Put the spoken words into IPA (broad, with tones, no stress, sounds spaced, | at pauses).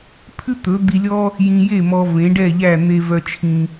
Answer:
pʰ ʉ˥ t̪ ɵ˩˥ d̪ i˧ lʲ ɔ˥ | j ĩ˧ j e˥˩ m ɔ˧ v ẽ˩˥ ɖ ɛ˥˩ ʎ æ˥˩ n̪ e˧ v œ˧ t͡ʃʰ ĩ˧